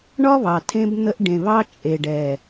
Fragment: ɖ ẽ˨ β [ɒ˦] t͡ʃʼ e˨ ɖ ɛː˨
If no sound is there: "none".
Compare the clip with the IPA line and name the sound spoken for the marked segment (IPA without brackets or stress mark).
ɑ˦